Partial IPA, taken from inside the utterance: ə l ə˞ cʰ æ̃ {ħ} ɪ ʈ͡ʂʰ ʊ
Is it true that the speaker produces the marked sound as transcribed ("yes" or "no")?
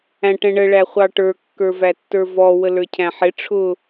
yes